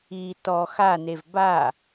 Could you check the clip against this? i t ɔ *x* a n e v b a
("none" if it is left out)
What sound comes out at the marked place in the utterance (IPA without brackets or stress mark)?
x